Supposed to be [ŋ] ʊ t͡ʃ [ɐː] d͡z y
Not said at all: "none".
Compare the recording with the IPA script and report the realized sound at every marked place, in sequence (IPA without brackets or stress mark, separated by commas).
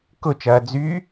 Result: k, ɐː